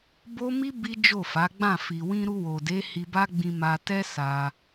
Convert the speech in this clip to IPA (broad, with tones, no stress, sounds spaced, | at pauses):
b o˦ m i˦ b i˦ d͡ʒ o˦˨ f a˨˦ ɡ͡b ã˦˨ f i˨ w ĩ˧ ɾ u˧ w o˨ d e˨˦ h i˧ b a˦ ɡ͡b ĩ˧ m a˧ t ɛ˦ s a˧